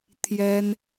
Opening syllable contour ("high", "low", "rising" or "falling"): high